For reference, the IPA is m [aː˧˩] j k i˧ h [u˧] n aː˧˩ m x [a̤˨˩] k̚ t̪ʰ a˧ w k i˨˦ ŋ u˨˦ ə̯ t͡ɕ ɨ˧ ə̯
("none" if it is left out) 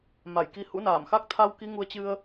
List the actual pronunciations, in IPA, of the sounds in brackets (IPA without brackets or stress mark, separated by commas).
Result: a˧˩, ṵ˧˥, a˦˥